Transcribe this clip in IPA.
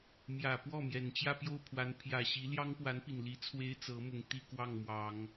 mjä˨˩pwɔ˥˩ mjɛ˨˩nt͡ɕjä˥˧ pjo˥˩ʊ̯pʰwa˧˥npʰjä˨˩ɕi˧˥ ljɑ˥ŋpwa˧˥npi˨˩nli˧˥ t͡sʰwe˥ɪ̯t͡sɤ˧˥ mʊ˨˩ŋ t̪i˥˧kwɑ˥˩ŋmwɑ˨˩˦ŋ

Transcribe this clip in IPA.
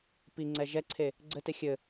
piŋ͡ǀɛ ʒɛǀʰe | ɡ͡ǀɘte xʲɘ

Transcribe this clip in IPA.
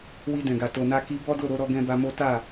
wi˧dɛ̃˨ɡa˨ to˨na˧ki˧ bɔ˦do˦˨ɾo˧ɾɔ˧ ɡɛ̃˦ba˦mo˦ ta˦˨

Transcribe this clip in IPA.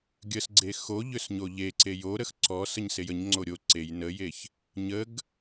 ɡʲəsɡ͡ǀe xo ʎʏsɲoʎeǀe joɾəx ǀɔ səɲsejəɲŋ͡ǀo ɾʲo ǀej nəjeç | ɲəɡ

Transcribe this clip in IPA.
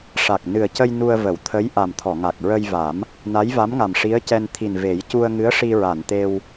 ʂa˨˩k̚ nɨ˨˩ə̯cə˧j nu˧ə̯və˨˩˨wt̪ʰə˧˥j ʔa˨˩mt̪ʰɔ˨˩˨ŋa˨˩k̚ ɹə˧jva˨˩˦m | na˧˥jva˧˥mŋa˨˩m ʂi˧˥ə̯cɛ˧n t̪ʰi˨˩n ve˨˩˦j cu˧ə̯ŋɨ˧˥ə̯ ʂi˧ɹa˨˩˨nt̪e˧w

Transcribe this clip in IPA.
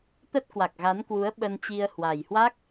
t̪ə˦˥t̚kwa˨˩k̚ɣa˨˦nkwu˨˦ə̯ ɓə˧nt͡ɕi˧ə̯ hwa˨˩jhwa˦˥k̚

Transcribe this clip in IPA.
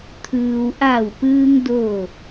t̪ʰɯː˩wʔa˧˩wpɯː˧ŋ doː˥˨

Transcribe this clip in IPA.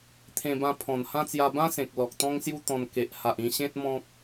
t̪ʰẽ˧bã˧ pʰɔ̃˨˩nhã˦t͡sja˧ bã˦sẽ˨k̚ lɔ˨k̚t̪ɔ̃˦ŋsju˦t̪ɔ̃˧n ke˨ʔ ha˨ʔ ĩ˧ ɕẽ˦t̚ mɔ̃˦k̚

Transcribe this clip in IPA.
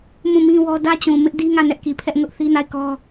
mũ˦˨mĩ˦wɔ˦ dä˦t͡ɕũ˨ mɪ˦ʔdi˦ŋä˦˨ nɛ˦ʔki˨pʰɛ˦ʔ ŋʊ˦ʔθi˦na˦˨ɪ̯ kɔ˦

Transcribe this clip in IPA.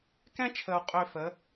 kɛ̃˦t͡ʃʰə˨u̯ qʼø˨ fə˨˦

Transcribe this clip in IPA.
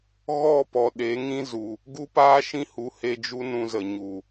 ɣɔ˦˨ pɔ˨ ɗe˨˦ŋĩ˦ zu˨ | ɡu˦paː˦ʃĩ˦hu˨˦ he˧d͡ʒu˦ nũ˧zə˨ɲu˨

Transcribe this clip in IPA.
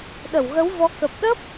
ɗə˧˩wɣə˨˦wvɔ˨˦ kə˨˩p̚ɗə˦˥p̚

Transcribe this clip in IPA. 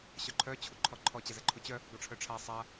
ɕœǃʰœ t͡ɕʰuǃʰɔǃʰɔ t͡ɕɛzɛǃʰut͡ɕœ | ɡɔʈ͡ʂʰœʈ͡ʂʰa sˤa

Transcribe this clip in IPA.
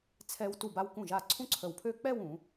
t͡sʰɛ˧w tu˧˩ba˧w kũ˧˩ʒa˧˩ ǀʰũ˥ǀʰə˧˩wpʰø˥˧ k͡pɛ˥˧w ũ˩˧

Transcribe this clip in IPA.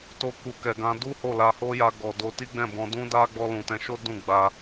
to˧ku˨ kɛ˨ɡã˧ du˦ho˦˨la˧ho˦ ja˧ɡɔ˨ do˧ti˦ɡ͡bɛ̃˦˨bɔ̃˧ dũ˦da˦ ɡ͡bɔ˧lũ˨tɛ̃˧ʃo˦ dũ˦˨ɡ͡ba˧

